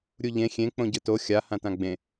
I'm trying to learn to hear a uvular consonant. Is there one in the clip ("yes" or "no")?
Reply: no